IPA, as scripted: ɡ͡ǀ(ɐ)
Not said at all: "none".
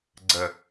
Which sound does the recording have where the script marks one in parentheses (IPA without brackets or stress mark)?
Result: ɐ